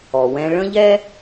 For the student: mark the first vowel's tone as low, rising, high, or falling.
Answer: low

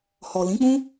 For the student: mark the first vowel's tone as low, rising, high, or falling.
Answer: low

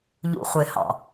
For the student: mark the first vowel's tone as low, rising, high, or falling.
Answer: low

